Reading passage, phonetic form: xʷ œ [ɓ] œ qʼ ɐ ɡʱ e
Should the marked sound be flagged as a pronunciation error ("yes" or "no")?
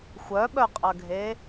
no